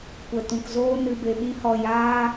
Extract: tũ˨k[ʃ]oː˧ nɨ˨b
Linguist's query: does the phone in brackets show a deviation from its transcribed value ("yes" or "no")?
yes